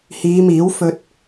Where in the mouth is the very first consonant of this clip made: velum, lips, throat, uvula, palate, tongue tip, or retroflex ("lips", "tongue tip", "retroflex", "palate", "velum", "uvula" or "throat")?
throat